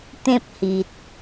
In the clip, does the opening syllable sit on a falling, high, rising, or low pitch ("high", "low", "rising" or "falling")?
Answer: high